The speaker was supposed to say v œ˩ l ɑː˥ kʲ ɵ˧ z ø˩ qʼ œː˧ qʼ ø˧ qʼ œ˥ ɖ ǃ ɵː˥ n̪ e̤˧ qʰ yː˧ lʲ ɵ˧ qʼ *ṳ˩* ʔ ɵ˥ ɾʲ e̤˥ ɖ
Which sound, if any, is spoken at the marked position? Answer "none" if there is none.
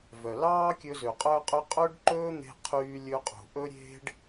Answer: ṳ˩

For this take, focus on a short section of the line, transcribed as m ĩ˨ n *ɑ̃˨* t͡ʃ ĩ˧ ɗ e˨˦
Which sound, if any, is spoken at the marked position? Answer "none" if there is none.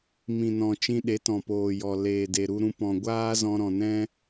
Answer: ɔ̃˨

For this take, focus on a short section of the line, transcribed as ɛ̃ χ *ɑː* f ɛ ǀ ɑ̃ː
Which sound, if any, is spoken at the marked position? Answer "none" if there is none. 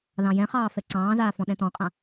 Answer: ɑː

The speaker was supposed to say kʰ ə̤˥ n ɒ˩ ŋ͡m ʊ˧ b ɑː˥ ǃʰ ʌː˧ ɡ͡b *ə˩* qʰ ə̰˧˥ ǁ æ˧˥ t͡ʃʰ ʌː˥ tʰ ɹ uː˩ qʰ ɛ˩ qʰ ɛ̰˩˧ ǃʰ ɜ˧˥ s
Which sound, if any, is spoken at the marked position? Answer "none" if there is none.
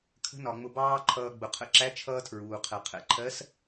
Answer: ʊ˩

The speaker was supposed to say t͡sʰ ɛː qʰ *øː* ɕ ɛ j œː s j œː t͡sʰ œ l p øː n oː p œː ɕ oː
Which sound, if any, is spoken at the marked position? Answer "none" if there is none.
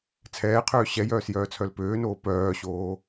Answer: øː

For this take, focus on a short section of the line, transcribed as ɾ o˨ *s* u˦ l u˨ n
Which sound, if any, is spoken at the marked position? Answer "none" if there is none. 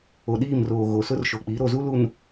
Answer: z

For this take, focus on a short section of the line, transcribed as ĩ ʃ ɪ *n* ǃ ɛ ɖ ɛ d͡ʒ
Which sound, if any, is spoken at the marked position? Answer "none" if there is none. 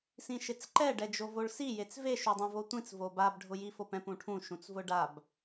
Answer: t͡s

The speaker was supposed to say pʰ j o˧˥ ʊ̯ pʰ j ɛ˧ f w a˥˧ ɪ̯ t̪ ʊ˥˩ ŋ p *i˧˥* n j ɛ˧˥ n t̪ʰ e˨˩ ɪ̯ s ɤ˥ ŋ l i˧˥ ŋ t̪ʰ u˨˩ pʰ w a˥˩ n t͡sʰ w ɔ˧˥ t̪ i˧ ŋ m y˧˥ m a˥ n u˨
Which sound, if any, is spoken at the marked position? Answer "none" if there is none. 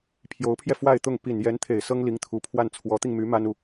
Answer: i˨˩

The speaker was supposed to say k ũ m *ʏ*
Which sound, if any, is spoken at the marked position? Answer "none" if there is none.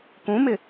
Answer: ɪ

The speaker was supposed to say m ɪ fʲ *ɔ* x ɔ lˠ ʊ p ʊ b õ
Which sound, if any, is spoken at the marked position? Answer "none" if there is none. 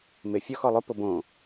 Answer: ɔ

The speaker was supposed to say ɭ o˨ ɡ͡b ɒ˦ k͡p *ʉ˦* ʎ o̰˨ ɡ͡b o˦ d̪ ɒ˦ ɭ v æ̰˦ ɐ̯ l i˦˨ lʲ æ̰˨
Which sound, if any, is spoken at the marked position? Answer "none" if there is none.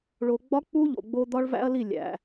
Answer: u˦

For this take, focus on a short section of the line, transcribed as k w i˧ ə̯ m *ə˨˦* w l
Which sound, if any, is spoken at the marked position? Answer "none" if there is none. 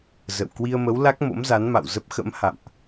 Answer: ə˨˦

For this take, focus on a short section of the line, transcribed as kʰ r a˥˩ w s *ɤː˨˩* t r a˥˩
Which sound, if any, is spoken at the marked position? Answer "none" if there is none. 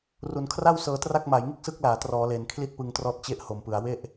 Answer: ɤː˧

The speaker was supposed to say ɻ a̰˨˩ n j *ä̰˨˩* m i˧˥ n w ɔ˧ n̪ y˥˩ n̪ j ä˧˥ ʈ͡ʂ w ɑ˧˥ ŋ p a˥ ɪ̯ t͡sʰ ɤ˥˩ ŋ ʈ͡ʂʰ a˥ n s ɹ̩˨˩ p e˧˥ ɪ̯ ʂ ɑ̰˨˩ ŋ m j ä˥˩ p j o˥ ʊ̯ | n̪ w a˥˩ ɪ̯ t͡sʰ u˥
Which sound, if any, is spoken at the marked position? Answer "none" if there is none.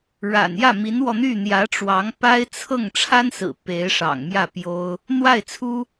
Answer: ä˥˩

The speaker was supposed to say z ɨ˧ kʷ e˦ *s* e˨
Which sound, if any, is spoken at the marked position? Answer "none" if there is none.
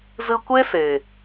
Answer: s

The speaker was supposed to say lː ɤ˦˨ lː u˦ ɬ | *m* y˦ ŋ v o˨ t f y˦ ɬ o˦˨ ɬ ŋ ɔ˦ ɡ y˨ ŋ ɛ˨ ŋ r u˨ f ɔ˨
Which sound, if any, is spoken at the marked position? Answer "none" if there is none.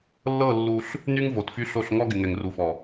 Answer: n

